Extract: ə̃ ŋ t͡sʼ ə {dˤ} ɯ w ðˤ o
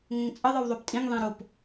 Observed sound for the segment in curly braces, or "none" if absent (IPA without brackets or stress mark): ðˤ